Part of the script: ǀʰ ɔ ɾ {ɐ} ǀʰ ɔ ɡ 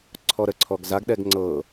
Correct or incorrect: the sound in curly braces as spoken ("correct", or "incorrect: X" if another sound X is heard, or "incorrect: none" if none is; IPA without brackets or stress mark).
incorrect: ə